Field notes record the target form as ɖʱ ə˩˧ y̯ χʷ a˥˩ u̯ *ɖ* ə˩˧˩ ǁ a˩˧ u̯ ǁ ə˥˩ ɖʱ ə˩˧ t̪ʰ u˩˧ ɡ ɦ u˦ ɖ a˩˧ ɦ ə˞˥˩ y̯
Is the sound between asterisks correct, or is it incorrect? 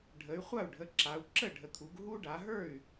incorrect